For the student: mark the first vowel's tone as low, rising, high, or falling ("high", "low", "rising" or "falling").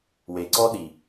low